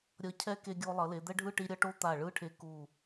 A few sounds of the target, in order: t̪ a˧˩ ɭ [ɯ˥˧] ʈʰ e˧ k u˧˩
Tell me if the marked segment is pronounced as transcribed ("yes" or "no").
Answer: yes